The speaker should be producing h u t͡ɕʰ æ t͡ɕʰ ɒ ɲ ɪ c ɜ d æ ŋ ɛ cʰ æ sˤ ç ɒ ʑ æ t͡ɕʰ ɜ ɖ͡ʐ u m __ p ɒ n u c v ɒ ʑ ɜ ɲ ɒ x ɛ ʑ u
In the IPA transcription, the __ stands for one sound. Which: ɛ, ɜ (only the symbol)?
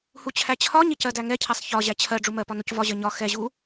ɜ